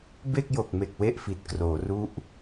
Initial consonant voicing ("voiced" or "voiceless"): voiced